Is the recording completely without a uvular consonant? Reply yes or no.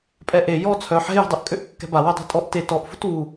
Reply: yes